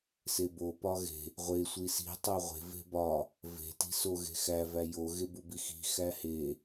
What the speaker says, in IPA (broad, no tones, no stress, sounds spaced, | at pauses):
s e b o p ɒ ɣ e̤ | ʁʷ e sʷ i s i̤ tˤ o ʁʷ e̤ v e̤ b ɒ | v e̤ t i̤ s o ɣ e̤ x æ v æ j o ɣ e b u b i x i̤ x æ h e